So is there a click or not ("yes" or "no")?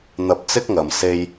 no